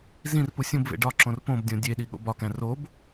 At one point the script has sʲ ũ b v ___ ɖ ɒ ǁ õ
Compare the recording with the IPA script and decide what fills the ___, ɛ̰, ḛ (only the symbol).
ḛ